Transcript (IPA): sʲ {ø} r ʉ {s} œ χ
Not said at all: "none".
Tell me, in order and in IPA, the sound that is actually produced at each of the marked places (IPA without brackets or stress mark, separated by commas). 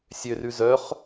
ø, z